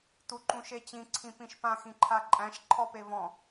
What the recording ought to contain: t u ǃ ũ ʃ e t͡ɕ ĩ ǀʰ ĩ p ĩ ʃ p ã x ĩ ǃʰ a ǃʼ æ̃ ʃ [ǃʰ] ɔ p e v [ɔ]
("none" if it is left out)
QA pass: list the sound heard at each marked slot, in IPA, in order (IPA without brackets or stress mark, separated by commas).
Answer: ǃʰ, ɔ̃